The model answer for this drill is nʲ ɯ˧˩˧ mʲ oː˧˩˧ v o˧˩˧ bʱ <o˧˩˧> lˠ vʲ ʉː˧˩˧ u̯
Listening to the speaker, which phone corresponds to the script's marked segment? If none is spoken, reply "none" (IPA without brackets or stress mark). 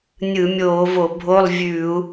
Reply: o˧˥˧